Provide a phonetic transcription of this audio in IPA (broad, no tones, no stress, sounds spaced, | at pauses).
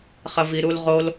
χ ɐ v i ɾ u l ʁ o l